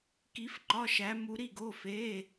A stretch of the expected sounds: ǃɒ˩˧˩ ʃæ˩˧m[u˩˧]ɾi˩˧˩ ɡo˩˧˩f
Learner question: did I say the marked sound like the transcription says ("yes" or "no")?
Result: yes